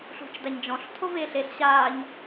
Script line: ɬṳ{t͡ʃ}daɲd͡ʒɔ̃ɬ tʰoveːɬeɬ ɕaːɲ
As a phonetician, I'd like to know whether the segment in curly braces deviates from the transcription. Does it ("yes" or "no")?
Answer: no